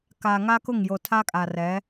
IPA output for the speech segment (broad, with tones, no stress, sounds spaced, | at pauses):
k a˨ ŋ a˦ k ʊ˦˨ ŋ j o˨ tʰ a˦ kʼ a˨ r ɛ˨˦